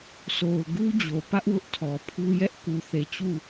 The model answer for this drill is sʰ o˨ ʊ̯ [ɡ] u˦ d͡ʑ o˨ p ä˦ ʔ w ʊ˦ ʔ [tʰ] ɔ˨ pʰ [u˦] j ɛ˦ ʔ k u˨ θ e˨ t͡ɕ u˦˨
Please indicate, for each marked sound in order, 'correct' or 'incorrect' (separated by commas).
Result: correct, correct, correct